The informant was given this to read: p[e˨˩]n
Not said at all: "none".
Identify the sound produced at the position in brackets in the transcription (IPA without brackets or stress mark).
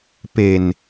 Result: e˨˩